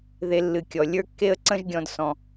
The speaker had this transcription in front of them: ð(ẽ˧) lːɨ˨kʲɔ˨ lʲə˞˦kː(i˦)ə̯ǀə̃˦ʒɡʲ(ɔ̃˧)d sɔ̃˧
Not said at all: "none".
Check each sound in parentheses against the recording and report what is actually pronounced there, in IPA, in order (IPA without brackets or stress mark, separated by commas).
e˧, e˦, ɔ̃˧